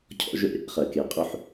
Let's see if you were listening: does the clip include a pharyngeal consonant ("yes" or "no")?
yes